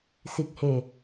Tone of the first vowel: low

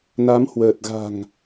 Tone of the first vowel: rising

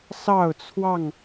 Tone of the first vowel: falling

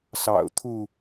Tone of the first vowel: low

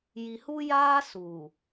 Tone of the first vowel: low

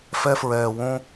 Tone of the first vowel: high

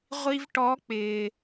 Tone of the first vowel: high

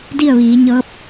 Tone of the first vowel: falling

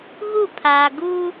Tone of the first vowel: falling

